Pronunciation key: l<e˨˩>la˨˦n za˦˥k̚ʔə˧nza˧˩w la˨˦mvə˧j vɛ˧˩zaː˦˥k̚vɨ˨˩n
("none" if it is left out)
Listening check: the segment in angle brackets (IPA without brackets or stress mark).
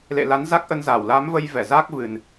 ḛ˧˨